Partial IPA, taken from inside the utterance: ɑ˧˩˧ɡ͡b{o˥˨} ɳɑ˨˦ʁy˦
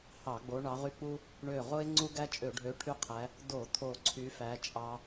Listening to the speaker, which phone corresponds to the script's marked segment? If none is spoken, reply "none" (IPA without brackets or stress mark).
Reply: o˨˦